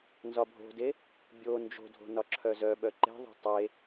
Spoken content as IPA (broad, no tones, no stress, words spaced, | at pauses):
nzɒbʱo̤de | bʲo nd͡ʒo̤dʱo̤ nɒǁʰœzœɓœ ǃe̤ðˤo̤ tˤe